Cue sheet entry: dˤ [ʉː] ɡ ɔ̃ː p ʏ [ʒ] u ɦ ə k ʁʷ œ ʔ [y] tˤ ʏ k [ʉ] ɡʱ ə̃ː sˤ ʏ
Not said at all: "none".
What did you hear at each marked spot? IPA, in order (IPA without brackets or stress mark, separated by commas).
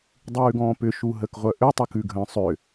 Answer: ʉː, ʃ, ʏ, ʉ